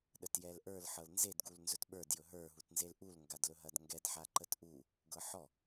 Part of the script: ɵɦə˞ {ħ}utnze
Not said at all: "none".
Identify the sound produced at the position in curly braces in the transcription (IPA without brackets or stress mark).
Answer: ɦ